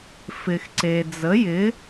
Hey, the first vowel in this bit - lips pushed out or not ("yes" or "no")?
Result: no